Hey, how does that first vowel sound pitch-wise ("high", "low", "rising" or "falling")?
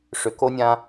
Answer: low